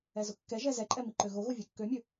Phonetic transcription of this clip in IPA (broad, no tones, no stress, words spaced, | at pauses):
ɛzʊkːɛʒɛ zɛǃʼɛ miǃøɣoɣo vʲɵkːømʲɵ